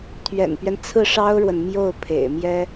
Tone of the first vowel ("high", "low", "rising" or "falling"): low